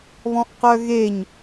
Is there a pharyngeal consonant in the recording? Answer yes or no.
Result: no